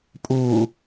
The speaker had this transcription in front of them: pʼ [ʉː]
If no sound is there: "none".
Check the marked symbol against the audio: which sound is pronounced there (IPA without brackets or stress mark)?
uː